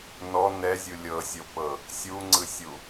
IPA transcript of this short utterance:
n ɔ n ɛ zʲ u lʲ ɤ sʲ o p ɤ | sʲ u ŋ͡ǀ ɯ sʲ u

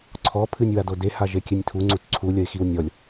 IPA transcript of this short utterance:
ǀʰ ɔ pʰ ɨ nʲ w a d o d e h a ʒ e kʲ ɨ nʲ tʰ u ŋ͡ǀ u t ǀʰ u lʲ ɐ ɪ̯ x i w nʲ ɔ lʲ

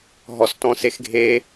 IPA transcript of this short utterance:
ɦ ɔ s t ɔ̃ s e x ɡʱ e

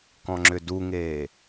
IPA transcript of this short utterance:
k ɔ̃ ŋ͡ǁ ʏ d u ŋ eː

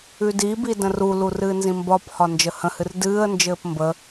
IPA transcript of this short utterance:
ʉ d i b i d ə̃ r u l u r ɨː n z ĩ m b ɒ p h ɒ n d͡ʒ ə h ə̃ h ɨ r d ɨː ə̯ n d͡ʒ ɘː p m b ə

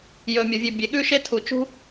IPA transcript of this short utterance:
j ɵ˩ mʲ o˩ vʲ ʉ˩ bʲ e˩ ɠ ʉ˧ ʃ e˧ tʰ u˩ t͡ʃ ṳ˧

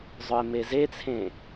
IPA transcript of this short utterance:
zˤ œ ɪ̯ m e z e t͡sʰ ẽ

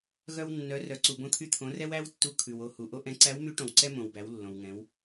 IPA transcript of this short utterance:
ɣ œ˧ w nː œ˩˧ r œ˩˧ ǀ u˩ b õ˧ t̪ʰ y˧ t̪ʰ õ˩˧ r ɛ˥ w æ˥ w tː u˧˥ kʰ ʉ˩ w o˧ h u˩ ʔ o˥ ʔ ɛ̃˧˥ ǀ æ˧˥ w m y˧˥ ʈ õ˩ w ǀ ɛ˥ m õ˩ w b æ˩˧ w lː õ˩ w ŋ ɛ̃˩˧ w

